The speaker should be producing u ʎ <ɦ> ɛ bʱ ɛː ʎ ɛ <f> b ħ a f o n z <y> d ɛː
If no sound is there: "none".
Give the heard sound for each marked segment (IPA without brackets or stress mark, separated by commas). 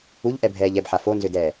ʔ, none, ʏ